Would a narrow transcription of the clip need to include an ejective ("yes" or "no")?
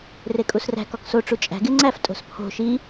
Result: yes